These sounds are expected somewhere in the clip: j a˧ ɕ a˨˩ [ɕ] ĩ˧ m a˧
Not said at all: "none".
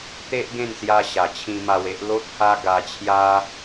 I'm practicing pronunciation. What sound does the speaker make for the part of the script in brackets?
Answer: t͡ɕʰ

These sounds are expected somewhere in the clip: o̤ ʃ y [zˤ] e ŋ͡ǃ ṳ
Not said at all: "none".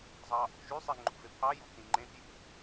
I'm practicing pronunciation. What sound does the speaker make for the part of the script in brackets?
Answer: sˤ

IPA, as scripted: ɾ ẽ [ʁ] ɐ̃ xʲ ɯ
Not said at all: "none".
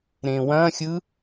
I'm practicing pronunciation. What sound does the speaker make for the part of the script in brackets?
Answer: w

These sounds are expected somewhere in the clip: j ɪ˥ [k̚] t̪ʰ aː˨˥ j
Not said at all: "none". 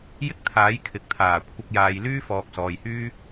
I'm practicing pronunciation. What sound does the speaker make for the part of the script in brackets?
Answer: k̚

